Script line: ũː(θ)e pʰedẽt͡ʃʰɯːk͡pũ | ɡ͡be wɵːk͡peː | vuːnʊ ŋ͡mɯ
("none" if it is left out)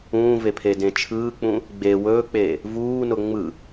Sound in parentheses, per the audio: v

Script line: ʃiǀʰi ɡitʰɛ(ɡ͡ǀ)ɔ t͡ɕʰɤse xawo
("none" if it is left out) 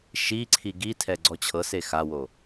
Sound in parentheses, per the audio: ɡ͡ǀ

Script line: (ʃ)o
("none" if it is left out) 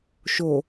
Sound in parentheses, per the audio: ʃ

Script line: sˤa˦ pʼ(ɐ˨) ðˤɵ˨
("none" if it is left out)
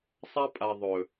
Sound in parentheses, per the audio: a˨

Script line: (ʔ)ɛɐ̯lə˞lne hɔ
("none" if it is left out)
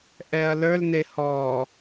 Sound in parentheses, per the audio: ʔ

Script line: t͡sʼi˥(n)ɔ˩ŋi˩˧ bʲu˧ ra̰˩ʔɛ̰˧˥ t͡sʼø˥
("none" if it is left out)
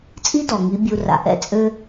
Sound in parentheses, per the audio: d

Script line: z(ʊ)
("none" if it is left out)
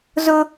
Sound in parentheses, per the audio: ʊ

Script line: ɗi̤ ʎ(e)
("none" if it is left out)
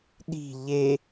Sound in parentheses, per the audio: e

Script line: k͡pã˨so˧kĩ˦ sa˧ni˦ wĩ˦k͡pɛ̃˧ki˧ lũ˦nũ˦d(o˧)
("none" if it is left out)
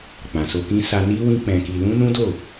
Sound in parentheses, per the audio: o˦˨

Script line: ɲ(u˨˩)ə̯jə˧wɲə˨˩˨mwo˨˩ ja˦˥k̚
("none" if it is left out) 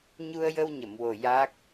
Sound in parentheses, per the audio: u˧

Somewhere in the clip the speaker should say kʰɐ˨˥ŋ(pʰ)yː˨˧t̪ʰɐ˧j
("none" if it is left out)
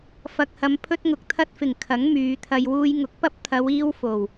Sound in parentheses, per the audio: m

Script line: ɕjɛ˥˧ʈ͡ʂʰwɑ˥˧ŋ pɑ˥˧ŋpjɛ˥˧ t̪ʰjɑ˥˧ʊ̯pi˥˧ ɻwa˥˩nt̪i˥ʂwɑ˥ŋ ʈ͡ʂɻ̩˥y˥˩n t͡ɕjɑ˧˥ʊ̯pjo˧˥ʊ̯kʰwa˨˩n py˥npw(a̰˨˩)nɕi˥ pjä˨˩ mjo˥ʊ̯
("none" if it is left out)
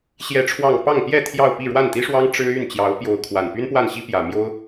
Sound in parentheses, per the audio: a˥˩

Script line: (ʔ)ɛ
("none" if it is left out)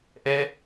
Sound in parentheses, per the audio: ʔ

